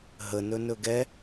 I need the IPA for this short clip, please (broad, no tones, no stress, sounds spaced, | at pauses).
ɦ ə n ɵ n ɵ ɡ ɛ